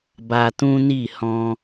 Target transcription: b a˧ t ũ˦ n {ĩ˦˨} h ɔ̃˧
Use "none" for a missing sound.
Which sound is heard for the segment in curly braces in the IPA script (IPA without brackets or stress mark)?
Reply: i˦˨